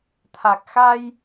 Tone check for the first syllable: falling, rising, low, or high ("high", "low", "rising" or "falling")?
low